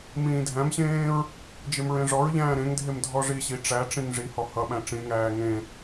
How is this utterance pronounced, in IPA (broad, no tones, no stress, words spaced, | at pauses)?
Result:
mĩːdʱæ̃mɕẽːɹ | d͡ʒemɹẽʐɔɹʎæ̃ː ɾẽŋdʱem dʱɔʐiɕi ʈ͡ʂæʈ͡ʂĩŋ ʐi hɔhʌɓæ̃ ʈ͡ʂĩŋæː ŋẽ